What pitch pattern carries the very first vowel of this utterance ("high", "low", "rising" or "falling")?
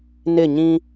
falling